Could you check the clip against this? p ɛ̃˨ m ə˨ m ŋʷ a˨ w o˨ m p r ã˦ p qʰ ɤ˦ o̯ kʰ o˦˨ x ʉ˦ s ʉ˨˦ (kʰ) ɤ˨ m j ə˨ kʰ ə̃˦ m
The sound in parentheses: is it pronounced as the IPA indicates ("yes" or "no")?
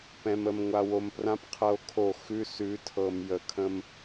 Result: no